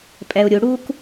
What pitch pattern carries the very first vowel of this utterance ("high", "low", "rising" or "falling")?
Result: low